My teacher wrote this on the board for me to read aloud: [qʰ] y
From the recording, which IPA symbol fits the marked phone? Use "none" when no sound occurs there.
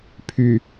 pʰ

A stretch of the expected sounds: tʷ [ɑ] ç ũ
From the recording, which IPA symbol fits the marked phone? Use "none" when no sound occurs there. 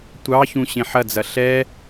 ɑ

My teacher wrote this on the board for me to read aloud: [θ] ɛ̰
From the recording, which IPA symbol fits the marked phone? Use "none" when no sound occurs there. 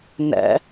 n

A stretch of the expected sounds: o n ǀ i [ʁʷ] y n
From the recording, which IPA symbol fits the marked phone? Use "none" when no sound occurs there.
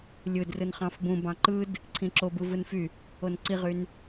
ʁ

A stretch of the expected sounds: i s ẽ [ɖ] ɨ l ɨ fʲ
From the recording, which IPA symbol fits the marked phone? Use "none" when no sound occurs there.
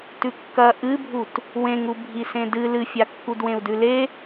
d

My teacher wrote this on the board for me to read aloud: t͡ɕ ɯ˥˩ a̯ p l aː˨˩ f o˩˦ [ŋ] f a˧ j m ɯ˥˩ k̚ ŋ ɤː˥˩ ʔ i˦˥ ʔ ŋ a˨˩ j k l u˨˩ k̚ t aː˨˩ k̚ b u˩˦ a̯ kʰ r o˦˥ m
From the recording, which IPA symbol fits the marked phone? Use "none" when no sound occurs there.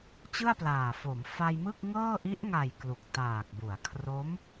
m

